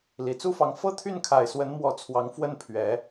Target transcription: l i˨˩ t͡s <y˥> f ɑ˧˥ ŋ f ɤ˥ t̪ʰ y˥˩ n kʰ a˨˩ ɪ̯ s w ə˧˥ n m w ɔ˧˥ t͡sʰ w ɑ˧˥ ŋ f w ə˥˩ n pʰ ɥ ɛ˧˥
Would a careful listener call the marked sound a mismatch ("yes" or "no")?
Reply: yes